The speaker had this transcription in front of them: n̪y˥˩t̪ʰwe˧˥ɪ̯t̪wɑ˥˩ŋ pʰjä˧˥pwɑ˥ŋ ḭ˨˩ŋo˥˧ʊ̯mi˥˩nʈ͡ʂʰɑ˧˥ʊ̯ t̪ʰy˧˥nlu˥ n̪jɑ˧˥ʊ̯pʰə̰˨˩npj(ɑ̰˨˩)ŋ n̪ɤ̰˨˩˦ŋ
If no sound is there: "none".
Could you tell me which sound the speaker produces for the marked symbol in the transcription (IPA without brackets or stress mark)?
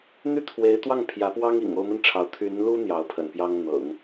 ɑ˥